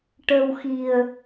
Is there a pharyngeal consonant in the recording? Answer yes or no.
no